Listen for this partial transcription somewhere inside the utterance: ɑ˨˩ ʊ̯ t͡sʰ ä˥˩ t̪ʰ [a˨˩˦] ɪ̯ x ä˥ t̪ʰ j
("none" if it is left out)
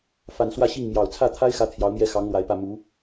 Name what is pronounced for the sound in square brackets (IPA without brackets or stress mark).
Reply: a˥